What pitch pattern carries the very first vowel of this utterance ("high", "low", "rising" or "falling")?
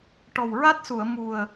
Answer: low